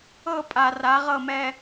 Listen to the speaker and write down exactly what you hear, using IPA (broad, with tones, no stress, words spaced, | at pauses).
ɤ˦˨pʼa˨ ra˨˦ʁɤ˦˨mɛ˦